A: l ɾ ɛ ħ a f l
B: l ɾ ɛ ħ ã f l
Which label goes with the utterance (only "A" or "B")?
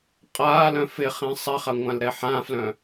B